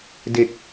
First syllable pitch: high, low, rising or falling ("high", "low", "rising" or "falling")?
low